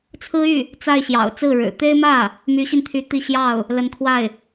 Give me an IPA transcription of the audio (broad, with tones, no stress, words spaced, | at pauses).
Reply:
t͡sʰɹ̩˥y˥˩ | t͡sa˥˩ɪ̯ɕjɑ̰˨˩ʊ̯ t͡sɹ̩˥˩ɻɻ̩˨˩ t̪e˥ɪ̯mä˥˩ | my˧˥ɕi˧nt̪ʰy˧˥ t̪i˥˧ ɕjɑ˥˩ʊ̯ | lə˧˥nkʰwa˥˩ɪ̯